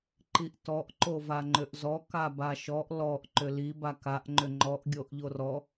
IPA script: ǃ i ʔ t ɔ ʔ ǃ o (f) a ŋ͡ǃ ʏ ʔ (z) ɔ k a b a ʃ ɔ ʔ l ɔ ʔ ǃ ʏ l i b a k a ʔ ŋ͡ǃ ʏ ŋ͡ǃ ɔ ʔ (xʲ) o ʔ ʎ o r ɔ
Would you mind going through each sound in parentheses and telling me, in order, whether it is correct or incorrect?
incorrect: v, correct, incorrect: ɡʲ

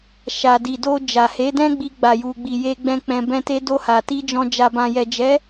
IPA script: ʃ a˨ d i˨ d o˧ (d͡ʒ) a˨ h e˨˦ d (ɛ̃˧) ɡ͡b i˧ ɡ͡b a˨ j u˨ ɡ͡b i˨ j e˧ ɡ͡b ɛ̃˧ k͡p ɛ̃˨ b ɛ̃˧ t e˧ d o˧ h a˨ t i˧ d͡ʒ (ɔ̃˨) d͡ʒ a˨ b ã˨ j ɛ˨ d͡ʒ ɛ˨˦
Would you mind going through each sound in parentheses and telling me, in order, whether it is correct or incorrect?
correct, incorrect: ɛ̃˦, correct

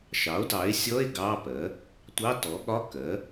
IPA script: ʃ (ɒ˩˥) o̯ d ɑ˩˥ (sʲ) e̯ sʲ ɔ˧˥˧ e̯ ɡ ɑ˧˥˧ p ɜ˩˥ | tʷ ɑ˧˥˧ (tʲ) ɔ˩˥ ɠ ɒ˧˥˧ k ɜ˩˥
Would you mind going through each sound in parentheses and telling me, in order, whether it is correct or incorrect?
incorrect: ɑ˩˥, incorrect: none, incorrect: t

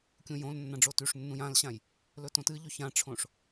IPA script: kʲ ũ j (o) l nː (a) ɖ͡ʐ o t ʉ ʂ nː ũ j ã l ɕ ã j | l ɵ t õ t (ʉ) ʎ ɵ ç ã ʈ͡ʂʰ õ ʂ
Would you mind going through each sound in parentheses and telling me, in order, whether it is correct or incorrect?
incorrect: õ, incorrect: ã, incorrect: ɨ

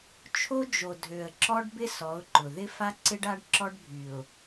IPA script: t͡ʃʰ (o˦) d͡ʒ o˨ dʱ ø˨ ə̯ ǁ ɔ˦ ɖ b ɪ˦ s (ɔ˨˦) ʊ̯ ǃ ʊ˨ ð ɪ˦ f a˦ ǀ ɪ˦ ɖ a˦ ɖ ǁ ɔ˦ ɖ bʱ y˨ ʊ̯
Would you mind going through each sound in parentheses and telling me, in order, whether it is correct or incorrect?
correct, correct

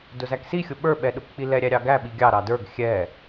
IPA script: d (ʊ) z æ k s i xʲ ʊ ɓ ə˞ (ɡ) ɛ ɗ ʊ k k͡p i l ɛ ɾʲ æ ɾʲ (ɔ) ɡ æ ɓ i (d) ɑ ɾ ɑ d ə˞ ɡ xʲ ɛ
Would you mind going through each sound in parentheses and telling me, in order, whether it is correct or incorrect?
correct, incorrect: ɓ, incorrect: ɑ, incorrect: ɡʲ

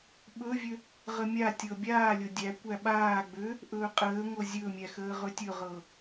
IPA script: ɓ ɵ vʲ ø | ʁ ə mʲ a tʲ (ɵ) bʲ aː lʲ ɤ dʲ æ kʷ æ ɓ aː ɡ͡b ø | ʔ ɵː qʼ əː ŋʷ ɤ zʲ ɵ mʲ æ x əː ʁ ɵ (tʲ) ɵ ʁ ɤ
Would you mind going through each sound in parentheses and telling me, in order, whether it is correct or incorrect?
incorrect: ɤ, correct

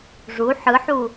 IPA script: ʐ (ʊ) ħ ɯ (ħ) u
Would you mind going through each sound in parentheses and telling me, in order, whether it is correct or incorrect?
incorrect: u, correct

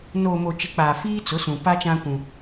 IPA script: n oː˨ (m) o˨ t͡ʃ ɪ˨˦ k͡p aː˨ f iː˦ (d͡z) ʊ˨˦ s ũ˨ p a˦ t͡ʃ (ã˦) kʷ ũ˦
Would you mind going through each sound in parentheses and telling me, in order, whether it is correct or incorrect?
correct, incorrect: t͡s, correct

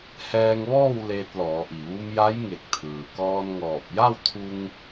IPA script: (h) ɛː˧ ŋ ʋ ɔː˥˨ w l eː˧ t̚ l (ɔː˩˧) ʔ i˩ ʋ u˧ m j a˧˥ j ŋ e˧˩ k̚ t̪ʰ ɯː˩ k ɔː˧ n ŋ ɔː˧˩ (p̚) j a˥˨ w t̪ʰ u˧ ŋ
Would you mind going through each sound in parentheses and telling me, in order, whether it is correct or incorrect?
correct, correct, correct

